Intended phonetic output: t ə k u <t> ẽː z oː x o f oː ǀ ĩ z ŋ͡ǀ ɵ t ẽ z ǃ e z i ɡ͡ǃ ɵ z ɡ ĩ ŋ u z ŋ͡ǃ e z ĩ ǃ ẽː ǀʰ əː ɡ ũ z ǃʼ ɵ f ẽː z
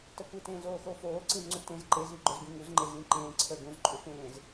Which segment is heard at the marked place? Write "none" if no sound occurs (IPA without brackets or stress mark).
t